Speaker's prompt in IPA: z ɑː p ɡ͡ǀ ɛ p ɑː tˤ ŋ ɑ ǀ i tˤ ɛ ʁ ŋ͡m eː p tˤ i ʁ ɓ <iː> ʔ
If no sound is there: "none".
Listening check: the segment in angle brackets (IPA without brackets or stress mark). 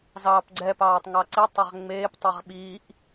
iː